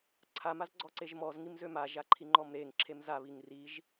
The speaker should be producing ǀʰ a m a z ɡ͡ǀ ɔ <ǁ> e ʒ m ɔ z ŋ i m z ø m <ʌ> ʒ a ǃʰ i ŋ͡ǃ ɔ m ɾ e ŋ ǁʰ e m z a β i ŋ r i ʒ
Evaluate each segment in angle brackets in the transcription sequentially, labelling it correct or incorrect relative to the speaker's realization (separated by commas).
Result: incorrect, incorrect